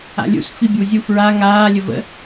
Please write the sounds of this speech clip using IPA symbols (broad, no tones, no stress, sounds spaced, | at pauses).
a̰ lʲ ṵ s f i bʲ u zʲ u f ɹ a ŋ aː lʲ ə v ə̰